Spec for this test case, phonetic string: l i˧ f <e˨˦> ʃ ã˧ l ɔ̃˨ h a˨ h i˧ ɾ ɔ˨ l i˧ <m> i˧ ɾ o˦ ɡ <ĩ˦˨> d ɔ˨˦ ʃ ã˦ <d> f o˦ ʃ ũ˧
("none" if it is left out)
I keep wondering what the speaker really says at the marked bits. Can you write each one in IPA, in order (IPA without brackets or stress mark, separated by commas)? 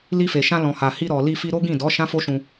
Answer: e˨, f, ĩ˦˨, none